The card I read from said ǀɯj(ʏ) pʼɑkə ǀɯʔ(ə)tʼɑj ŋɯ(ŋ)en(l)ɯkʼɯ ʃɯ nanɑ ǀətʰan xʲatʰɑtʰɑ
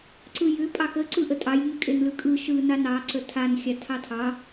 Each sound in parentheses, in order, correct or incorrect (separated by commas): correct, correct, incorrect, correct